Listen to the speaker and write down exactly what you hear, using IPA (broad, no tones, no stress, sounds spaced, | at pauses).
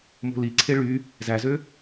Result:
m o̤ l i ǀʰ e ɭ y | z æ z ø